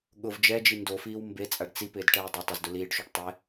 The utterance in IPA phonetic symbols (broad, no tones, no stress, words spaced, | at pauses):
ɠʊv d͡ʒɛd͡ʒi ndofiːw mbet͡sʼaɖ t͡sipɪːd ʈɛːdˤɪtˤʊz dʊliːɖʃuɖ tˤɪ